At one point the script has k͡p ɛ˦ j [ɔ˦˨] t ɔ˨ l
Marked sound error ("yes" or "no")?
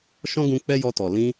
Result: yes